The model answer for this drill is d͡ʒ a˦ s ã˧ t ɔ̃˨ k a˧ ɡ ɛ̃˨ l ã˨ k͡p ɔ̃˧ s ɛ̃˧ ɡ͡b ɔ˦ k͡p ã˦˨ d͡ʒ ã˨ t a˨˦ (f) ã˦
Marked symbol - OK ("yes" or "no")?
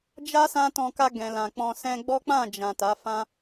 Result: yes